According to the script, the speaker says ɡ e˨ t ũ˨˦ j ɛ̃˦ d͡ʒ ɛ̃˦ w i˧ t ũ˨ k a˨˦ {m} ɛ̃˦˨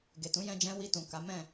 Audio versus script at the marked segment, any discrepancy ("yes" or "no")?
no